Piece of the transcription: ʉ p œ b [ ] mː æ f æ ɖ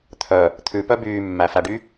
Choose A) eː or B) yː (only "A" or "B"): B